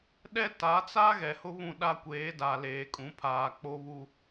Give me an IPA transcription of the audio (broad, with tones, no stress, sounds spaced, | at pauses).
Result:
ɗ ɛ˦ t a˨˦ t͡s a˦ ɣ ɛ˨ h ʊ˦ β ũ˦˨ ɗ a˦ kʷ eː˨˦ d a˨ l eː˨ kʼ ũ˨˦ pʰ aː˨ k͡p o˦ β u˦